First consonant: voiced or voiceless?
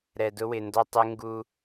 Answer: voiced